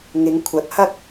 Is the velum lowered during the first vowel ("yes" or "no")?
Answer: no